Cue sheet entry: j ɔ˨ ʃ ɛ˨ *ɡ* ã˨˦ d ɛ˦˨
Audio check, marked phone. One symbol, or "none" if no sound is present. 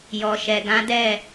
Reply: ɡ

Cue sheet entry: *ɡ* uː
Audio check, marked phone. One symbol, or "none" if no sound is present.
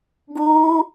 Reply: ɡ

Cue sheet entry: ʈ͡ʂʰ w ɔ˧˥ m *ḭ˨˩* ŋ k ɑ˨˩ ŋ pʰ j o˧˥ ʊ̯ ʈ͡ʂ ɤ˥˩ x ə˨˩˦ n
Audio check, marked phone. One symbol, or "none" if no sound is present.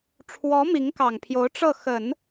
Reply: i˧˥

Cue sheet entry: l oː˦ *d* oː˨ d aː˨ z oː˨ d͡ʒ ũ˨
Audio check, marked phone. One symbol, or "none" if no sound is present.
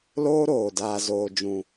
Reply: ɾ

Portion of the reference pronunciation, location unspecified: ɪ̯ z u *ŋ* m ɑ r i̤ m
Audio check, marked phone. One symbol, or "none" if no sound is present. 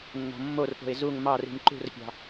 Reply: ŋ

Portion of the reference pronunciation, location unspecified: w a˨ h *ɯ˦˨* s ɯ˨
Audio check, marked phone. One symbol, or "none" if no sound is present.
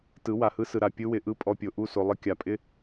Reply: ɯ˦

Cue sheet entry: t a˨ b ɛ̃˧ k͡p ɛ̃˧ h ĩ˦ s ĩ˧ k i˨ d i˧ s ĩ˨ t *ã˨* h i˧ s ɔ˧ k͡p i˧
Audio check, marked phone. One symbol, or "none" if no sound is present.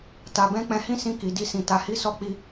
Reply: a˨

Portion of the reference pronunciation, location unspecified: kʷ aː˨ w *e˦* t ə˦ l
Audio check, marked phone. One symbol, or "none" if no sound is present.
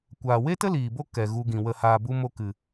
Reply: e˦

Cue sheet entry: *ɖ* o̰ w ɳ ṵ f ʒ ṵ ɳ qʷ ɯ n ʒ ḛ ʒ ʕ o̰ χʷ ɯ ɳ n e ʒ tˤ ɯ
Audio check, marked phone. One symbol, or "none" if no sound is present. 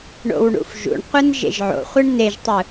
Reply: ɳ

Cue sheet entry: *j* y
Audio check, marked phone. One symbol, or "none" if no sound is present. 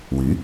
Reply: w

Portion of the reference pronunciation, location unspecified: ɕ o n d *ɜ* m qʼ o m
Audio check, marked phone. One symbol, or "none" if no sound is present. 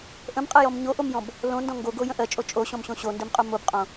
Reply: ɜ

